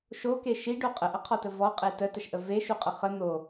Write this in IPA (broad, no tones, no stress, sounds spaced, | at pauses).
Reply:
ʃ o k e ʃ i ɖ o qʼ ə ʔ ə qʰ ɔ t ə v ɔ qʼ e t ə t ə ʃ ʔ ə v e ʃ u qʼ ə χ ə n̪ o